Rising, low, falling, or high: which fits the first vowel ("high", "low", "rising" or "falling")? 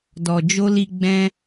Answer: low